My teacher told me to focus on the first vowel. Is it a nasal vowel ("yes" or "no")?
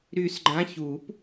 no